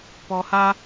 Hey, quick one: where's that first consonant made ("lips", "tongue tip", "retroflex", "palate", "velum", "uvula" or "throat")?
lips